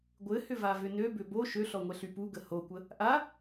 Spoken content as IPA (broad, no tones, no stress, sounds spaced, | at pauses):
ɡʷ ɘ h ʏ v a v ʏ n ø b ʏ b o ʃ ø ɬ ɔ ŋʷ ɛ ɬ y p u ɡ ə h o kʷ ə | ʔ a